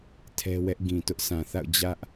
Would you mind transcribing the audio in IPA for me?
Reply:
tʰ ɛ˦ w ɛ˦ ʔ ɡ ĩ˨ t ʊ˦ ʔ s ã˨ θ a̰˦˨ ʊ̯ d͡ʑ ä˦ ʔ

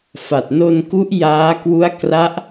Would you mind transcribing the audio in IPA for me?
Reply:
f a˨˩ t̚ n o˧ n k u˦˥ ʔ j aː˦˥ k w u˦˥ a̯ k r a˦˥ ʔ

